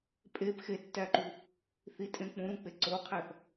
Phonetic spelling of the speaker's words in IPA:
pʼep xetːæǃu | θitʼẽ k͡pũɾũk͡pe ǀoqʰæθ

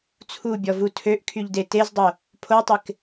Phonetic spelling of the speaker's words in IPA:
t͡sʰubʲɔvu tʰøʔkʰyʎde tezdˤo | pʰotˤɪk

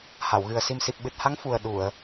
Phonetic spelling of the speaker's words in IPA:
ha˨˩˨wɣɨ˨˩ə̯ si˨˩msi˨˩p̚ɓɨ˨˩t̚ha˧˥ŋ fu˨˩ə̯ ɗu˨˩˨ə̯

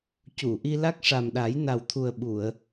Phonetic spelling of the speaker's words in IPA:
cu˨˩˨ʔi˧ la˦˥k̚ʂa˨˩mɗa˨˩˦j na˨˩wt̪ʰu˨˩ə̯ɓu˨˩˨ə̯

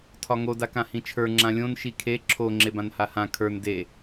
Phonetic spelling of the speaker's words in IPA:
tʰɒŋo dakãhĩt͡ʃʰə˞ ŋ͡ǁãlʲõn ʃikʰe ǁʰo ŋ͡ǁebãnhahã kʰə˞n de

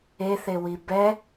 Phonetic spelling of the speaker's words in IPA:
eθewi bɛ

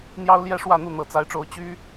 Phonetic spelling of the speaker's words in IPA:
n̪jɑ˥ʊ̯ljɛ˥ʂwä˥˧n̪u˥˩ n̪ɤ˨˩t͡sa˧˥ɪ̯ʈ͡ʂo˧˥ʊ̯ t͡ɕy˥

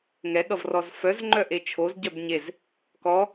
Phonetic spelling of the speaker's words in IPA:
ŋɛɠʌvrɔz fœzŋ͡ǃœʔe t͡ʃʰozɟœb ɲez | kɔ

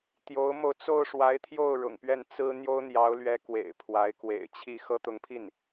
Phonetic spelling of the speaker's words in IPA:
t̪jo˧˥ʊ̯mo˧ʊ̯ t͡so˥˩ʊ̯ʂwa˧˥ɪ̯t̪ʰjo˥˩ʊ̯ ɻʊ̰˨˩ŋpɥɛ˥˩n t͡sɹ̩˥ n̪jo˥ʊ̯n̪jɑ˧˥ʊ̯lɥɛ˧˥ kwḛ˨˩ɪ̯pʰwa˧˥ɪ̯ kwḛ˨˩ɪ̯t͡ɕʰi˥˩ xɤ˥t̪ʊ˧˥ŋpʰi˥˩n

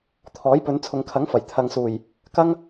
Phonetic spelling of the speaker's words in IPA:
t̪ʰɔː˨˥jpɵ˨˧n t͡sʰʊ˨ŋkʰɐ˨˥ŋfɐ˨˩j t̪ʰɐ˨ŋsuː˨˩j | kɐ˥ŋ

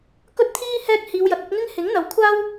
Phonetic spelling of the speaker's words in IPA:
kɵ˥t̚t̪ʰiː˥ hɛː˥k̚ hiː˨˧wjɐ˨t̚ɵ˨˥t̚ ŋɪ˥ŋ hɪ˨˥ŋ n̪ɐ˨wkʷʰaː˥w

